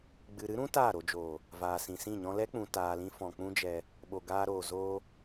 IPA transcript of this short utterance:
ɡ͡bɨ˨ɾɨ˦ɾũ˦ taː˦˨ɾo˧d͡ʒoː˨ | vaː˨sĩ˨sĩ˦˨ɲɔ̃˦ lɛ˦k͡pũ˨ taː˨lĩ˧fɔ̃˨ k͡pũ˦d͡ʒɛ˧ | ɓo˨ɡaː˧ɾoː˨ zoː˧

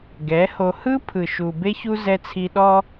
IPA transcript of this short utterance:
ɡɛ˨˦ho˧ hɯ˦pʰɯ˨ ʃu˨ be˦çu˦ zɛ˧t͡sʰi˧ ɗɔ˦

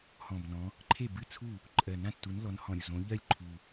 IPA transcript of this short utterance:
hɔ̃˨˩bnɔ̃˨˦ | ǃʰe˥˩bɨ˥˩t͡sʰu˥˩ | ǃʼɜ˨˩nã˥˩tːu˨˦n lɔ˨˦nhɔ̃˨˩ɾʲu˥˩zõ˨˦ ʎɜ˥˩lʲ ǃʰu˨˩

